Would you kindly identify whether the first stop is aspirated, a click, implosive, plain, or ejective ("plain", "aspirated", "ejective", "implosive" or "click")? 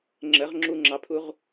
click